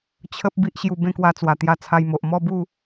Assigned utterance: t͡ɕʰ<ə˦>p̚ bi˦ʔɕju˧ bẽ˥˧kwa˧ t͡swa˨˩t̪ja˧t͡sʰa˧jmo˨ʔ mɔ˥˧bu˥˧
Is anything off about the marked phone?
no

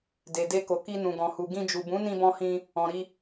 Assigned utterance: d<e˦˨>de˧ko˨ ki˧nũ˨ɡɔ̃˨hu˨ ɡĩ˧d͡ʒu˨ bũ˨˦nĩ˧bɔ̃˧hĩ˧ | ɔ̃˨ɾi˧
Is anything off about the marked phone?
yes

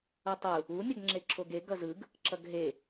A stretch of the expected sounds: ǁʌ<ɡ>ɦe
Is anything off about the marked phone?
no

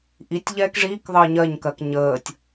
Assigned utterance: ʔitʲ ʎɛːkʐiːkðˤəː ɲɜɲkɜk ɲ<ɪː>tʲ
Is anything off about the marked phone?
yes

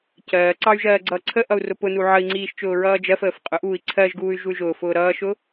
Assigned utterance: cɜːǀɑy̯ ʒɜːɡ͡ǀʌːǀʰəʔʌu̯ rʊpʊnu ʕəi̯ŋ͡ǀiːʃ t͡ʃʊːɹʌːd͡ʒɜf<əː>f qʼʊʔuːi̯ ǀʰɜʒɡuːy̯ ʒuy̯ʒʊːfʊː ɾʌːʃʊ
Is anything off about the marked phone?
no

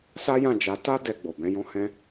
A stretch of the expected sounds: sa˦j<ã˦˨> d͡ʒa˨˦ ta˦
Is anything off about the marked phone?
no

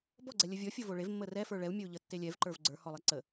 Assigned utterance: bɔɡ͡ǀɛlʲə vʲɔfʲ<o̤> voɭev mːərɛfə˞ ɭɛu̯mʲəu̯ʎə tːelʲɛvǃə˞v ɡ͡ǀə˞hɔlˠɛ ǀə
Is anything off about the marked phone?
yes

